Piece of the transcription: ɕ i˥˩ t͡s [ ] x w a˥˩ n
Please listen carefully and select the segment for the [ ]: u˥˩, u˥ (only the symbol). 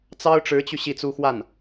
u˥